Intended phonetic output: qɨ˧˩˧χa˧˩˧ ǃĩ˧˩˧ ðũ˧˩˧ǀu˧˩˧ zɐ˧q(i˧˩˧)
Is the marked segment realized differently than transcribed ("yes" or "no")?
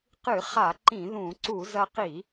no